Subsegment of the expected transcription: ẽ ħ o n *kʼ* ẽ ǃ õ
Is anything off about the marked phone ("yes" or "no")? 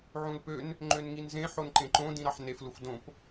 yes